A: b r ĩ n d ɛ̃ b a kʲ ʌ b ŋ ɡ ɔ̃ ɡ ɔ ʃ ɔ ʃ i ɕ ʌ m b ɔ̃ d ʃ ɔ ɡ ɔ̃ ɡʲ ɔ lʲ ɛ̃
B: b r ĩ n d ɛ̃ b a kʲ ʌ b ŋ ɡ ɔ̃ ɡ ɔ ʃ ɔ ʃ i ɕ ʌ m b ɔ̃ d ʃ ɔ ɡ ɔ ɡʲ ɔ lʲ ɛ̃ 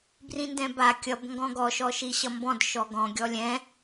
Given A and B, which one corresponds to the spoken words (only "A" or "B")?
A